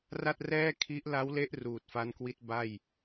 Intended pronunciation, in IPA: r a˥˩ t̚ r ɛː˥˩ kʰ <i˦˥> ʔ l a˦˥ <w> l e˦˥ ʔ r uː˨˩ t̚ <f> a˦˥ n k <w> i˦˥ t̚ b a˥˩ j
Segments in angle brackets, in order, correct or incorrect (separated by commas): correct, correct, correct, correct